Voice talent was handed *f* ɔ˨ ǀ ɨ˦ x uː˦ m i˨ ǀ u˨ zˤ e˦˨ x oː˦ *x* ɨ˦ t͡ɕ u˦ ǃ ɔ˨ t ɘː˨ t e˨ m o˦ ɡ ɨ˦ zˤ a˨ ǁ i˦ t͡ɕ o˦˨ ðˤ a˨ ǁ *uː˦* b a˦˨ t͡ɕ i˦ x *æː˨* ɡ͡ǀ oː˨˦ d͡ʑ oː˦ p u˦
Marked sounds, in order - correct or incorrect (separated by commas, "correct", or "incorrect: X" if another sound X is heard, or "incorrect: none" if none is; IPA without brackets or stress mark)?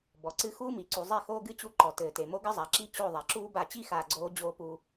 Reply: incorrect: b, incorrect: ɡ, correct, incorrect: aː˨